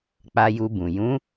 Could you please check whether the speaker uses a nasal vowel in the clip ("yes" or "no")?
yes